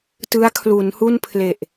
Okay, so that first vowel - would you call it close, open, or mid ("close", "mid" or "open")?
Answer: close